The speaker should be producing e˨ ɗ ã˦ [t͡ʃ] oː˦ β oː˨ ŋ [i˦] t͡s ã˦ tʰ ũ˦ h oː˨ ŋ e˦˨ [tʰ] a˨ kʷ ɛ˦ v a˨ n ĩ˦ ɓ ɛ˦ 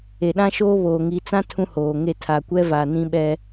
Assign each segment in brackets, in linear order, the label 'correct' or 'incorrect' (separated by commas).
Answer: incorrect, incorrect, correct